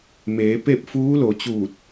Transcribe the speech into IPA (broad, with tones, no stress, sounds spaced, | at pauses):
m eː˩˧ p e˥˨ p̚ f uː˧˥ l o˩˧ t͡ɕ uː˧˩ t̚